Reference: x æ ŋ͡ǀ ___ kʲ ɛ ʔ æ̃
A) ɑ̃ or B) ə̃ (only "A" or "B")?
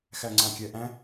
A